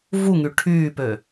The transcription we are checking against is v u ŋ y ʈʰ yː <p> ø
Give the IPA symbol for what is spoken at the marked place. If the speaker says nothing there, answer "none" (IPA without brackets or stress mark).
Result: p